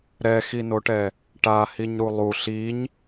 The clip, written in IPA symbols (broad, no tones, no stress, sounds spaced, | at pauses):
ɾ ɛ x i n o ʈ ɛ | ʈ a h i ɲ ɾ u lˠ u ɬ i ɲ